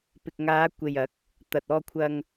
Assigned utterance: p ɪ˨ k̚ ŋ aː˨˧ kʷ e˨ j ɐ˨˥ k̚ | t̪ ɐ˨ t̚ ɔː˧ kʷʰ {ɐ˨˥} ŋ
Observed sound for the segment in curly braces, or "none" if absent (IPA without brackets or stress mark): ɐ˧